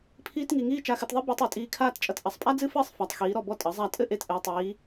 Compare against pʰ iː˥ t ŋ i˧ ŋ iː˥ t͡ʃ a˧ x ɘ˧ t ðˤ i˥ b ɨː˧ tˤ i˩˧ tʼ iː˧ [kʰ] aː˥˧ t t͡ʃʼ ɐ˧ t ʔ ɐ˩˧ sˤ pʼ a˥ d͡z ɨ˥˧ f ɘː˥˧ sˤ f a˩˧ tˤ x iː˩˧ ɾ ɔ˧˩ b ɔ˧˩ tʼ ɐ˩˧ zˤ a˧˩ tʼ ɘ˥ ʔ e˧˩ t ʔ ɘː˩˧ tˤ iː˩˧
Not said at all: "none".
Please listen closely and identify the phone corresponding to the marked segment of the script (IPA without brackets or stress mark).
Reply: kʰ